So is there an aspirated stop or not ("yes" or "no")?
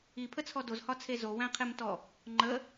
yes